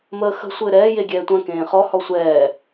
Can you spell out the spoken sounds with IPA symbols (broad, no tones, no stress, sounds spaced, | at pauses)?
m əː x ə̤ sʷ ɘː ɾ ɛː j e ɡʲ ɛː tʷ ɐ̃ k ẽː χ ɔ h ɔ sʷ ɛː